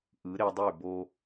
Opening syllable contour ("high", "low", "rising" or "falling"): rising